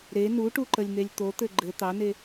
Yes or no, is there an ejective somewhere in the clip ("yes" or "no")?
no